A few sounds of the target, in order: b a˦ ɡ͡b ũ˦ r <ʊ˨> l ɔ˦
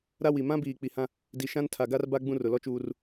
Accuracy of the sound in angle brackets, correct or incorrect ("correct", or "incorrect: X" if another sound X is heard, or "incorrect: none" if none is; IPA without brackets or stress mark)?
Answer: correct